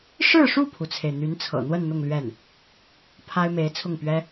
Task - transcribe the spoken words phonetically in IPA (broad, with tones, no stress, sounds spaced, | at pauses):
ʂ ɻ̩˥˧ ʂ u˥˩ pʰ u˩ t͡sʰ e˩ ɪ̯ n̪ y˧˥ n t͡sʰ ɤ̰˨˩ n̪ w ə˥˧ n n̪ ʊ˥˧ ŋ l ɥ ɛ˥˩ n | pʰ a˥ ɪ̯ m e˧˥ ɪ̯ t͡sʰ ʊ˥˩ ŋ p ɥ ɛ˥